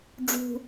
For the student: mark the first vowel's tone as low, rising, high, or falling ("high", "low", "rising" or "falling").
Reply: high